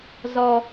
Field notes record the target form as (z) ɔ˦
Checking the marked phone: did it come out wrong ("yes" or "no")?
no